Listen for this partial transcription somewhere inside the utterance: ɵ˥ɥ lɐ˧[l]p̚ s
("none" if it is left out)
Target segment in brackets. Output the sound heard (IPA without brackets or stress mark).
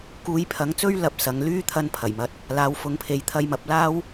none